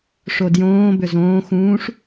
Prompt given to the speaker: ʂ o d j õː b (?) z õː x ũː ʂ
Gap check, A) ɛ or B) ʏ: B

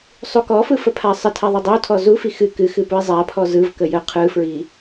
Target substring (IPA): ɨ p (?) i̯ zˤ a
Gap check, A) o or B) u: B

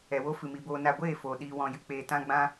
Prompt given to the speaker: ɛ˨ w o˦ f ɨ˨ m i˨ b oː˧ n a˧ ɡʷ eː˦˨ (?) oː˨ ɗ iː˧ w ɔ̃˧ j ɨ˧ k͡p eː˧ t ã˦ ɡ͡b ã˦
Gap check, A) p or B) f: B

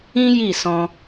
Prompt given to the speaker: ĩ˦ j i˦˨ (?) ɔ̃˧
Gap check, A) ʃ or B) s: B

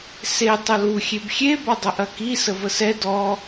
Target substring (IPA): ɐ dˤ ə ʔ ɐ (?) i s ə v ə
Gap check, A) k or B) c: A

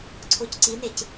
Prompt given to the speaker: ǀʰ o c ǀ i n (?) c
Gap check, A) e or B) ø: A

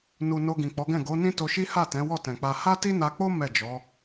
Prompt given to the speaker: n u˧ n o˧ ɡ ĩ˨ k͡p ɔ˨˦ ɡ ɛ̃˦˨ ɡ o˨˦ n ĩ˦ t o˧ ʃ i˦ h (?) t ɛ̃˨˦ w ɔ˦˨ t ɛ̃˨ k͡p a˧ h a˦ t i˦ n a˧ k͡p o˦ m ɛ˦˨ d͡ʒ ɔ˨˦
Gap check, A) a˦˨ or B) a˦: A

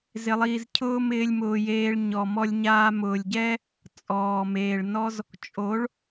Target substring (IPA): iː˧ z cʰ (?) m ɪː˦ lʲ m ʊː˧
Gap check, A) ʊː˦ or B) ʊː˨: A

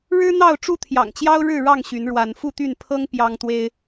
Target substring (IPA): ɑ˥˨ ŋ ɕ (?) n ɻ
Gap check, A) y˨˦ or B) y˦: A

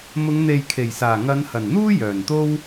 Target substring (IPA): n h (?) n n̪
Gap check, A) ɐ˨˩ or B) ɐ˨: A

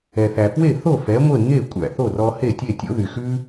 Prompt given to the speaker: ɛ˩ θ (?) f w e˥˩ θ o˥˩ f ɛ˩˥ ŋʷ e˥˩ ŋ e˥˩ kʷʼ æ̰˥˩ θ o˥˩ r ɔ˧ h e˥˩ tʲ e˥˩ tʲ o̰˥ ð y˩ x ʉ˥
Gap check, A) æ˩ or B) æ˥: A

